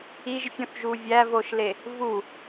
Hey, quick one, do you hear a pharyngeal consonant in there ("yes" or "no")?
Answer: no